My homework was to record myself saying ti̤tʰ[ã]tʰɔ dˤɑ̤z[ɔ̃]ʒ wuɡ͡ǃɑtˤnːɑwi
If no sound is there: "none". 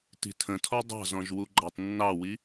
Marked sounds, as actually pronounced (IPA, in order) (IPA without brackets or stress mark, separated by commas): ə̃, ɔ̃